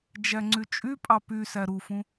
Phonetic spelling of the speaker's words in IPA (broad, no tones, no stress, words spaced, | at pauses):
d͡ʒæŋ͡ǀyt͡ʃʼypʼɑ py sæɾufũ